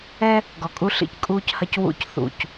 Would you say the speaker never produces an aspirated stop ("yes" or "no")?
yes